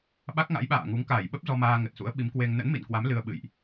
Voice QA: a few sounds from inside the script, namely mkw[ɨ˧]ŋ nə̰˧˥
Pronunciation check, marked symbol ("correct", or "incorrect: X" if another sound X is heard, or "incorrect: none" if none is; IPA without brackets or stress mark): incorrect: e˧